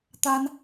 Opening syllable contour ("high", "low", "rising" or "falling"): high